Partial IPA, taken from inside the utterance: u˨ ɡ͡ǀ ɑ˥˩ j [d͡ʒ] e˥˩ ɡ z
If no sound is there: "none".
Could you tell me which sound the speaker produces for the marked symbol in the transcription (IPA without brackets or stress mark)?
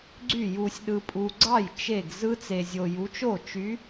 t͡ʃ